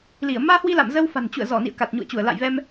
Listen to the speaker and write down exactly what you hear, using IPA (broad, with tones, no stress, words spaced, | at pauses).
li˧˩ə̯ maː˧hwi˧la̰ː˧˨m zə˧w fa̤˨˩nt͡ɕṵ˧˨ə̯ zɔ˧˩nḭ˧˨ə̯ ka˨˩t̚ɲṵ˧˨ə̯t͡ɕu˧˩ə̯ la̰˧˨jvɛ˧m